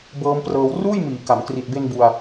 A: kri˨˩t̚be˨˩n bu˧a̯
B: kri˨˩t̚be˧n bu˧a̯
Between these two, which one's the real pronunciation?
B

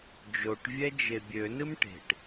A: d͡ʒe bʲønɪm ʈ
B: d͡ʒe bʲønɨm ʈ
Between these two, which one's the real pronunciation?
B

